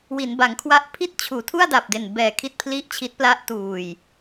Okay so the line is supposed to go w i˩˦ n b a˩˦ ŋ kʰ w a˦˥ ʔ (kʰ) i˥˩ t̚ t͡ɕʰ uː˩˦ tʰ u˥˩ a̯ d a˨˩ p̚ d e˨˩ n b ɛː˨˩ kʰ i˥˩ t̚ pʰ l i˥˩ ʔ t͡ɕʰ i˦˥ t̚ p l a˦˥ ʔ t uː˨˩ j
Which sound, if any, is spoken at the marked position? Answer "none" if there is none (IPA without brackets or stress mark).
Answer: pʰ